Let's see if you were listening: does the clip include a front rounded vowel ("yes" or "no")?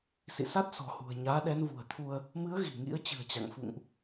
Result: no